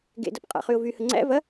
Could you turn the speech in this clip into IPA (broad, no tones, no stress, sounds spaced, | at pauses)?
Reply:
ɡ ḛ d ɐ p qʼ æ̰ χ y ʊ̯ v y h ə ŋ͡ǀ æ̰ v ɐ